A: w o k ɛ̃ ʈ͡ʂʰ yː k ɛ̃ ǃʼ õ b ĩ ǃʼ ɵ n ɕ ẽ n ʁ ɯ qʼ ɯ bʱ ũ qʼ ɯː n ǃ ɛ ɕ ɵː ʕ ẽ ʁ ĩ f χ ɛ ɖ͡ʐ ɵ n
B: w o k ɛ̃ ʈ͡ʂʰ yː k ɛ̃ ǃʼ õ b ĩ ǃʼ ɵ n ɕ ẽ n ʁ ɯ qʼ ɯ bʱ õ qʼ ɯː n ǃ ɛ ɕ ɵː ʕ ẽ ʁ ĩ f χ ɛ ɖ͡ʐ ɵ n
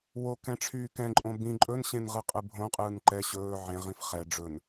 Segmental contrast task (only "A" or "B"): B